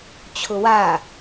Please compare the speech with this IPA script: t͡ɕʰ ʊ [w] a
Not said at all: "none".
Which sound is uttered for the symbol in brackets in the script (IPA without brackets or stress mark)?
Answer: w